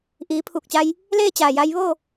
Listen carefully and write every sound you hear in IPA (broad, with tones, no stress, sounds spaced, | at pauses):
ʔ iː˩˧ pʰ uː˧˩ k̚ t͡ɕ a˧ j | l eː˥˨ t͡ɕ aː˧˩ j a˧ j ʋ o˥˨